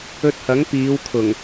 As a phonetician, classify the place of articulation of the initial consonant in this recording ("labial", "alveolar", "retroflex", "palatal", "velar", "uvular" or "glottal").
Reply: alveolar